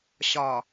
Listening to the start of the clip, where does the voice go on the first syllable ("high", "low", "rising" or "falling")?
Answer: low